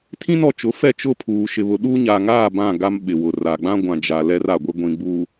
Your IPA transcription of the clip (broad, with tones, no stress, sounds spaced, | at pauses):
tʰ ĩ˦ n ɔ˨ t͡ʃ ʊ˨˦ f ɛ˦˨ t͡ʃ ʊ˦˨ pʰ uː˨ ʃ ɪ˨ β ʊ˨ ɗ u˦ ɲ a˨ ŋ aː˦˨ b ã˦˨ ɡ a˦ m ɓ ɪ˨ w ʊ˨ r a˨ ɡ͡b ã˦ ɡʷ ã˨ d͡ʒ a˨ l ɛ˦ r a˨ ɡʷ ɪ˦ ɡʷ ĩ˨ ɡ͡b uː˨